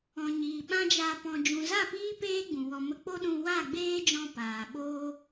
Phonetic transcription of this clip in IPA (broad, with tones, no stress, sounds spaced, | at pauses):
ɔ̃˨ ɲ iː˨ ɓ ã˦ d͡ʒ a˧ p ɔ̃˨ d͡ʒ ũ˨ z a˦˨ p iː˦ p eː˦ ɡ͡b ũ˨ w ɔ˧ m ə˧ k͡p o˦ ɗ ũ˧ w a˦˨ ɡ͡b eː˦ d͡ʒ ɔ̃˧ p aː˨ ɓ oː˦